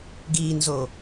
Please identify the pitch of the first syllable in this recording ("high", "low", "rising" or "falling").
low